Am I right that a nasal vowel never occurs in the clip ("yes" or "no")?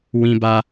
no